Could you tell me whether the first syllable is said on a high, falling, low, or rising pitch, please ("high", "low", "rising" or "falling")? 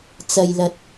low